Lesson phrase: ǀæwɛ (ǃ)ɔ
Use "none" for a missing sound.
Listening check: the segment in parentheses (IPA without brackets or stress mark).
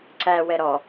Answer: ɾ